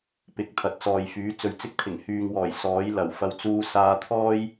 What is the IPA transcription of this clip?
pɪ˨k̚t̪ʰɐ˨t̚t͡sɔː˨jfyː˨˥ t͡sɵ˨ɥt͡sɪ˥k̚t̪ʰɪ˨˩ŋ hyː˨ŋwɔː˨˩j sɔː˨˥j lɐ˨˩wfɐ˧w t͡suː˧saː˧t̪ʰɔː˥j

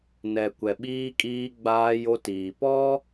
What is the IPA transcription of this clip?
nɛ˨kʷɛ˨ɓiː˦kʼiː˦ ɡ͡baː˦jo˦tiː˨ pɔ˦

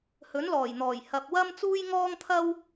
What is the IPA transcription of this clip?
hɵ˨˥nlɔː˨˩jn̪ɔː˨˩j hɐ˨p̚wɐ˥m t͡suː˥jŋɔː˥ŋt̪ʰɐ˥w

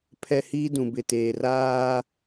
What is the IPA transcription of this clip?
pʰɛ˦hiː˦ dũ˨bɪ˨teː˨raː˦

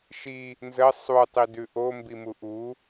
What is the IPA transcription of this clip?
ʃi | nzə sˤu tˤidʉʔo mbimuʔu

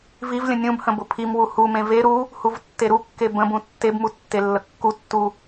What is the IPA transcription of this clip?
vivlʲə̃ nʲũbhə̃ bʊpʰimwu humẽ veɾu | huvtːeɾukːe bə̃bũ tːebmu tːelːəkːutːu

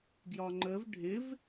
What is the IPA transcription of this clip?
ɡjɒŋ͡ǃəv ɖʱɪv

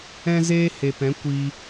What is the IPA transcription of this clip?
ɛ̃˦zeː˦he˨pɛ̃˨˦ kʷi˧

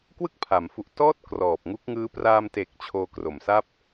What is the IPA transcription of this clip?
kwɯ˥˩k̚pʰa˩˦m fu˨˩ʔ tɔː˥˩t̚ krɔː˨˩p̚ŋu˦˥k̚ŋɯː˦˥ praː˧mte˨˩k̚ t͡ɕʰoː˧kro˨˩msa˥˩p̚

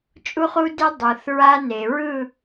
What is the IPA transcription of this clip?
t͡ʃʼu˦χu˦de˦ dˤɯ˨θɹa˦ ne˨ɹɯ˦˨

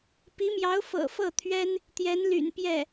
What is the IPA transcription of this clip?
pi˧˥mjɑ˧˥ʊ̯ fɤ̰˨˩fɤ˥˩t̪ʰɥɛ˥n | t̪jɛ˧˥n ly̰˨˩npjɛ˥˩

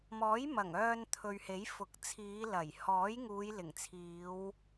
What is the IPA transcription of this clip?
mɔː˨˥jmɐ˨˩ŋœː˧n t̪ʰɵ˨ɥhe˨˥jfʊ˨˥k̚ t͡sʰiː˨˧lɐ˨˩j hɔː˨˥jŋuː˨˧jlɪ˨˩ŋt͡sʰiː˨˧w

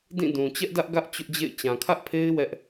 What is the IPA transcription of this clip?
dĩ˦˨ dũ˨ t͡ɕɛ˦ʔdä˦ʔ ɡä˦ʔ t͡ɕʊ˦ʔd͡ʑḛ˦˨ɪ̯ t͡ɕã˨kʰä˦ʔpʰe˦ɪ̯ wɛ˦ʔ

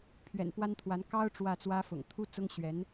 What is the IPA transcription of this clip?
pʰɥɛ̰˨˩npwa˥nt̪ʰwa˧˥n kɑ˥ʊ̯ ʈ͡ʂwä˥˩t͡swä˥fʊ̰˨˩ŋ t̪ʰu˥t͡sʊ˥ŋɕɥɛ˧˥n

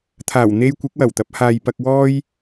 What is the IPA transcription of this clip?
t̪ʰaː˨˩wn̪e˧j kʷɪ˨˥k̚wɐ˨˩wt̪ɐ˨˥p̚haː˨j pɐ˨k̚wɔː˧j

